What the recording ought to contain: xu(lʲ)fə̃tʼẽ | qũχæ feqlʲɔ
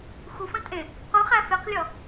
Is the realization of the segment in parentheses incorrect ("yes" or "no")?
yes